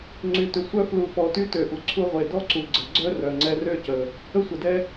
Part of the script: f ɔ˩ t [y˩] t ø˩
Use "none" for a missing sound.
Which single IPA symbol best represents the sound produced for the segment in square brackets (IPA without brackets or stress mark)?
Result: y˧